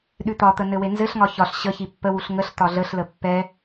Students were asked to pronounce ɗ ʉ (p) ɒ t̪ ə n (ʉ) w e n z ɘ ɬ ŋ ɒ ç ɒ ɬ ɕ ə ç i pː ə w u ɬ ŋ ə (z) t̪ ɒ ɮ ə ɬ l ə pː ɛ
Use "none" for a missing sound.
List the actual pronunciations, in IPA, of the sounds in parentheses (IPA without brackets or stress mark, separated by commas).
t̪, ɘ, ɬ